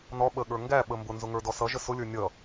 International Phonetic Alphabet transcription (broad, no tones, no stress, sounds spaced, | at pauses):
n ɔ ɓ ə ɠ ə˞ ŋ ɡ æ ɓ ə m b ʊ n z ʊ ŋ ə˞ d ɔ s ʌ ʒ ə s ʊ lʲ ə˞ nʲ ʌ